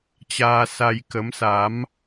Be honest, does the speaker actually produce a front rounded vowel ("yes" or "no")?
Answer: no